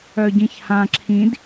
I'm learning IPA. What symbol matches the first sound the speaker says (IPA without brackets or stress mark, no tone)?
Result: œ